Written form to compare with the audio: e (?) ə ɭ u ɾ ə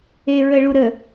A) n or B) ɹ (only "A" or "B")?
B